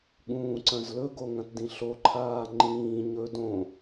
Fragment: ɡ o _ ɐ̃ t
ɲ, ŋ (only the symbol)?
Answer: ŋ